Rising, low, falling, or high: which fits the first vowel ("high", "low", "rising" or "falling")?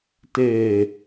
low